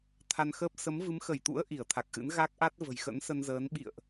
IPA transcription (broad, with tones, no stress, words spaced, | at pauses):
t̪ʰa˧nxəː˦˥p̚ sə˨˦mvɨ˨˦mxə˧˩jt̪ṵ˧˥ə̯ ʔi˧˩ə̯t̪ʰa˨˩k̚ʔɨ̰˧˥n ɣa˦˥k̚ʔa˦˥t̚ və̤˨˩jxə̰˧˥nsə˧nzəː˨˦n ɓḭ˧˨ə̯ʔ